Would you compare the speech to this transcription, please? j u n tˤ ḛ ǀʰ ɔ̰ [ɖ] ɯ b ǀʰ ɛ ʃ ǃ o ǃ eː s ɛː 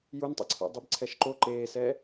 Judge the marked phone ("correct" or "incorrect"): incorrect